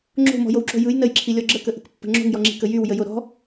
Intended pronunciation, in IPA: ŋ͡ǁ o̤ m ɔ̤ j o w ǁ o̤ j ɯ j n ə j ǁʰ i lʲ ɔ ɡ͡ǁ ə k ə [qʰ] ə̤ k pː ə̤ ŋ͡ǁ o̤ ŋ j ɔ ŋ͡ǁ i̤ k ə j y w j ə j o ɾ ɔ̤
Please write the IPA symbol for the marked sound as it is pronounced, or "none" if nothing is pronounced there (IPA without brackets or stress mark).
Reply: ʔ